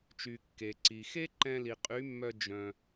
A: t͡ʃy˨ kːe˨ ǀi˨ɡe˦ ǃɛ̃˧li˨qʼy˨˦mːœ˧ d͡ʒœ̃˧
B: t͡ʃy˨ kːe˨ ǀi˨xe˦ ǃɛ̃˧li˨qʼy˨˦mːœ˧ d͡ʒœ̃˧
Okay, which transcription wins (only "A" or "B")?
B